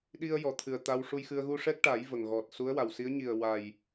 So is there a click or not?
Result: no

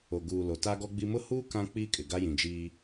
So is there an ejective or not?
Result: yes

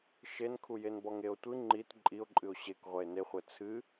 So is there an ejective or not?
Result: yes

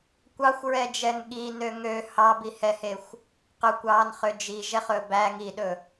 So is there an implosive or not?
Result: yes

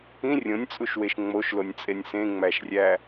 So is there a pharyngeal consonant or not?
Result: no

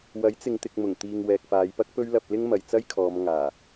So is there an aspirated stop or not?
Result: yes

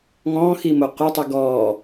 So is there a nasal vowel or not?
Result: yes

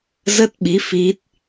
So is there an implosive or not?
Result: yes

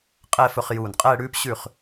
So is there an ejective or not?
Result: yes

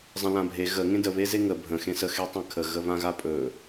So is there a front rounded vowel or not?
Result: no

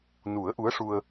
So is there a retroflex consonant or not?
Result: yes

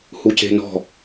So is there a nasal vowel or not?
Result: no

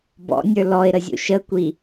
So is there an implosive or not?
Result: no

